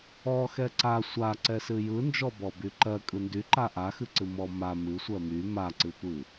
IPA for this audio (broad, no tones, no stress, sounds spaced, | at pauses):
ɔ x ɛ ǀ a sʷ a ǀ ɛ s ɨ j ɯ n d͡ʒ ɔ b ɔ b y ǃ ɜ kʼ ɯ n d y ǃ a ʔ a x ɨ ǀ ɨ m ɔ m a m ɨ sʷ ɜ m y m a ǀ ɨ tʷ ɨ